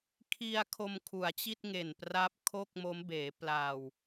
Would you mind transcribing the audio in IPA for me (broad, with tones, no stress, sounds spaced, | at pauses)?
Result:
kʰ i˧ a̯ kʰ o˧ m kʰ u˩˦ a̯ t͡ɕ i˥˩ t̚ ŋ e˨˩ n p r a˦˥ p̚ kʰ o˥˩ k̚ m o˦˥ m b eː˩˦ p l a˨˩ w